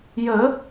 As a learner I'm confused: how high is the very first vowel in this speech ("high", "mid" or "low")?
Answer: mid